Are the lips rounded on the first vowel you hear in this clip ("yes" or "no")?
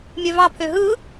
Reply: yes